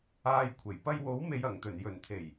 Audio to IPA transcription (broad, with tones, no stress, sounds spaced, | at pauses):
aː˧ j kʷʰ e˨˩ j p ɐ˧ j w o˨˥ w m e˨ j ɐ˨˩ ŋ t̪ ɵ˨˩ n j ɵ˨˩ n t̪ʰ e˨˩ j